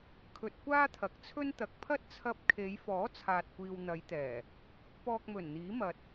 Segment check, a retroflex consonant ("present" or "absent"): absent